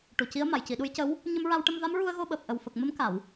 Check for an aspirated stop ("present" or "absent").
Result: absent